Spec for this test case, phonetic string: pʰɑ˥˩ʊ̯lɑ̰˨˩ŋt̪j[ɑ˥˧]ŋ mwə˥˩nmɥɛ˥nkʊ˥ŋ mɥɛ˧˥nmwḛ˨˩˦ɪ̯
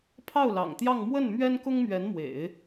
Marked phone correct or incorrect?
correct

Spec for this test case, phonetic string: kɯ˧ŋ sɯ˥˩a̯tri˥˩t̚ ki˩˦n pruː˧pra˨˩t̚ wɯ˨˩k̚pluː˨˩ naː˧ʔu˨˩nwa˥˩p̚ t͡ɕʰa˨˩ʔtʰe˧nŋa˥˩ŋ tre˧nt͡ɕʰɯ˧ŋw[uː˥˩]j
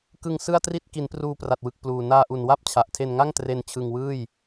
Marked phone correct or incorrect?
incorrect: ɯː˥˩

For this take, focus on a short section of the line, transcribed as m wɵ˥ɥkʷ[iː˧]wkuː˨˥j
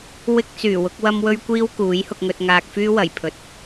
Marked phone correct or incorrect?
incorrect: iː˥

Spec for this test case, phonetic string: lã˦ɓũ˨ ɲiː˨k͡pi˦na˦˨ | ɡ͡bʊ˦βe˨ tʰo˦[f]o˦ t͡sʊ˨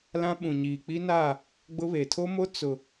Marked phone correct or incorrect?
incorrect: m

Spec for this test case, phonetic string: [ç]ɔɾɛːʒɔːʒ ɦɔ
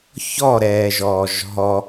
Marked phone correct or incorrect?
correct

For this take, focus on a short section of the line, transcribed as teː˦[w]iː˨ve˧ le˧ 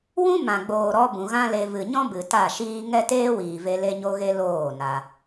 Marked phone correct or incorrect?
correct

